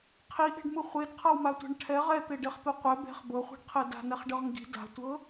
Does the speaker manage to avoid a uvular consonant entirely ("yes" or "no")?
no